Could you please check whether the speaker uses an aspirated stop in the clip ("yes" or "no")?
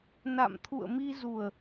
yes